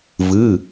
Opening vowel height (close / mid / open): close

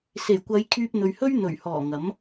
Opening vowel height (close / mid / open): mid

